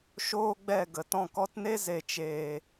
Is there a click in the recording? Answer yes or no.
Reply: no